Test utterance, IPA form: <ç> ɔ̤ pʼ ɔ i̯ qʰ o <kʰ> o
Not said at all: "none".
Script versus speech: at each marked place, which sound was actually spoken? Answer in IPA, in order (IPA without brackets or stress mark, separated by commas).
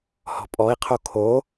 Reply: h, kʰ